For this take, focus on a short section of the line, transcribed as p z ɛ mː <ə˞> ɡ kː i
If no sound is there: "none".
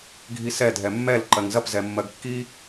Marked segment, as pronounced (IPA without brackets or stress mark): ɜ